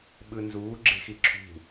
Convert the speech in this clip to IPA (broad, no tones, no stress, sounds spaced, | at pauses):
ɓ ɯ n z uː ɡ͡ǁ e̤ x i ǁʰ ṳ